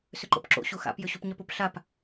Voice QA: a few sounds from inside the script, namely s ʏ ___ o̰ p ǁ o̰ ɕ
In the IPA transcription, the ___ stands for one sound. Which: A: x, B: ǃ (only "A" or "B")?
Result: B